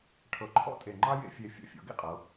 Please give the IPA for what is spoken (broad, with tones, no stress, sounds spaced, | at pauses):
ʈʰ ɤ˧˩ ǃʰ ɔ̰˥ tʼ e˧˩ ŋ͡ǃ ɑ˥ j ḛ˧ fʲ e˧˩ fʲ ɔ̰˧˩ fʲ ɔ̰˩˧ ɡ ḭ˥˧ qʼ ɤ˩˧